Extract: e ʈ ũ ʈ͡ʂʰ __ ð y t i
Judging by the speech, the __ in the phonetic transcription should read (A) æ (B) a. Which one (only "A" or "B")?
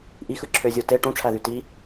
A